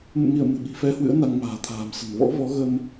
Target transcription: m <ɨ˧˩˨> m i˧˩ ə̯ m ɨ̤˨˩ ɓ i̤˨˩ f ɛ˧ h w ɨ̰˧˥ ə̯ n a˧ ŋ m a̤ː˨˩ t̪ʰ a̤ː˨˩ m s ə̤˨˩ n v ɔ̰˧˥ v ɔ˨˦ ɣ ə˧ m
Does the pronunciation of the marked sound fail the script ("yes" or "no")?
yes